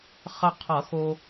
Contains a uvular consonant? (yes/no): yes